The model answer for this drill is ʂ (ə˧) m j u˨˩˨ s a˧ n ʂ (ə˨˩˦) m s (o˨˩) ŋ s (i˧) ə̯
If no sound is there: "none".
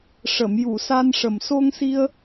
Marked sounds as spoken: ə˨˩˨, ə˨˩, o˧, i˧

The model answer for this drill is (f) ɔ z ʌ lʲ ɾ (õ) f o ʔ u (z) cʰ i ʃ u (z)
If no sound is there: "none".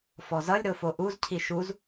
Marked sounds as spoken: f, o, z, z

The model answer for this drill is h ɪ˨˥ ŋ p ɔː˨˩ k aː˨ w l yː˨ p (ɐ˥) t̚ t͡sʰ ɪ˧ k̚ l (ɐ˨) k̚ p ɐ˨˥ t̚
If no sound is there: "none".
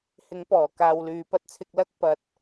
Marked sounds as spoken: ɐ˥, ɐ˥

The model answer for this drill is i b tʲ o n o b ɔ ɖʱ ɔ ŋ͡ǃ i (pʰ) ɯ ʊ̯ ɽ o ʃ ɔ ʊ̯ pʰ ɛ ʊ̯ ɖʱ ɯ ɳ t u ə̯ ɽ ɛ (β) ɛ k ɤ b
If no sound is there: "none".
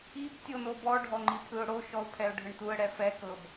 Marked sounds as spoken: pʰ, f

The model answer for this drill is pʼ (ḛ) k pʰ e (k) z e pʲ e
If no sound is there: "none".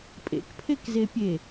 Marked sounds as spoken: ḛ, k

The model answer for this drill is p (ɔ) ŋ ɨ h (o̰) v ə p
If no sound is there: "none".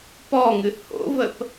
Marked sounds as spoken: ɔ, o̰

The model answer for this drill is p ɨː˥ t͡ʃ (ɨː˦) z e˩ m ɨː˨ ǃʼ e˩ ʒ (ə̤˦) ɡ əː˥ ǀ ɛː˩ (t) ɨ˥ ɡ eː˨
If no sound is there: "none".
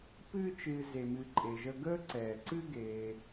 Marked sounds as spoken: ɨː˨, ə˦, ǀ

